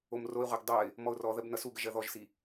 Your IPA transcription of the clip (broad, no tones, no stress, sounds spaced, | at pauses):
o m r o ɪ̯ ʁʷ ɜ ɡ dˤ ʌ ɪ̯ | m ɔ ʊ̯ r ɔ ð ɜ b n ʌ s u ɡ ə ʒ ɜ ð ɔ ʒ s i